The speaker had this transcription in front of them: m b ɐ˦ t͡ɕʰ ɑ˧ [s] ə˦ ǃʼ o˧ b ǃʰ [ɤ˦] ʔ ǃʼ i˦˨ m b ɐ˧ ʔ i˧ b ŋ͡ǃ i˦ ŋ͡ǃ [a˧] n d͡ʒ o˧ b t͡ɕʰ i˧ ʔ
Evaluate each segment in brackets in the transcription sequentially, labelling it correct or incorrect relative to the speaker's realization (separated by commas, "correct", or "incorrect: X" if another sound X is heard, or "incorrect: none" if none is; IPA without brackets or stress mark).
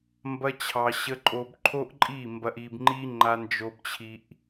incorrect: ɕ, incorrect: o˦, correct